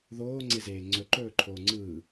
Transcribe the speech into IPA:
ð oː ŋ͡ǀ e z eː ŋ͡ǀ ɵ ǃ ɵː ǃʰ oː ŋ͡ǀ ɯː

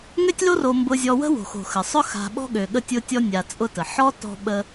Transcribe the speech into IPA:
ŋ ø˦ tʲ l o˦ r o˨ m b ʊ˨ zʲ ɔ˨ w ə̤˦ w o̤˩ x o̤˩ x ə˩ sˤ ʊ˥ x a̤˨ ɓ ɔ̤˦ ɠ ø˩ ɠ ə˦ tʲ ʊ˦ tʲ ɔ˦ nʲ a˨ t͡sʼ ʊ˦ t ə˩ ħ ɔ˥ t ɔ̤˦ ɓ ə˦

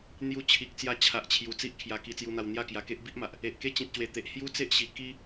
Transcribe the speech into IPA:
n̪ j u˧ t͡ɕʰ i˨ k̚ t͡s j a˧ t͡ɕʰ a˨ ʔ t͡ɕʰ j u˨˩ t͡s i˦ ʔ kʰ j a˧ k i˧ t͡s j u˧ n̪ a˧ w n̪ j a˥˧ k j a˧ k e˦ ʔ b i˦ ʔ m a˨ ʔ | e˨ ʔ k e˦ t͡ɕ ĩ˨ t̚ ɕ w e˨˩ t̪ e˨ ʔ h j u˦ t͡s e˦ ʔ ɕ i˨˩ k i˦

